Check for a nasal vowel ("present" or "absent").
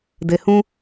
present